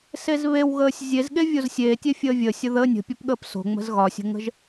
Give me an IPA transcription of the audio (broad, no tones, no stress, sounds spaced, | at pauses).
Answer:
s e z β e w ɣ əː sʲ zʲ e z ɠ e vʲ o z sʲ eː tʲ e fʲ əː vʲ ə sʲ ə ð əː nʲ ə̤ pʲ ɒ p ɠ əː p s o̤ ŋ͡m ə̤ z ɣ ɒ sʲ ə̤ ŋ ə̤ ʒ